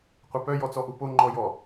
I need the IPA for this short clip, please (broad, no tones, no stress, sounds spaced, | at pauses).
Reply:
qʷ ɐ p œ j ɔ t͡s ɔ ʔ u p o ŋ͡ǃ ɔ j ɔ